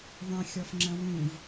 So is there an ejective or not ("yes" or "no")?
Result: no